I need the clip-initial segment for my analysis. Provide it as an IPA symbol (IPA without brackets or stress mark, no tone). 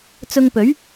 t͡s